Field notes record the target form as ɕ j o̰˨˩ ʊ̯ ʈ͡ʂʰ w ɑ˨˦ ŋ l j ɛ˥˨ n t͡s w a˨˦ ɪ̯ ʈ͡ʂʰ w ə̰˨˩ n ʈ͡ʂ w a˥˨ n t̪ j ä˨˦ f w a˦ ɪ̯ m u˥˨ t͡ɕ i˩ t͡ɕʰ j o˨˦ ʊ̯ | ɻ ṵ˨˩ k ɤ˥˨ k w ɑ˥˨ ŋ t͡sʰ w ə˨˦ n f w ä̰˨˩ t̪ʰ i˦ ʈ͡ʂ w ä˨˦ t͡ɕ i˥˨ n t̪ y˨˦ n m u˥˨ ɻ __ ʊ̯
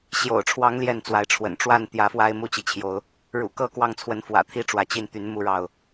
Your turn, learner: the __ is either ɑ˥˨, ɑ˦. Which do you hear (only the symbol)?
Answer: ɑ˥˨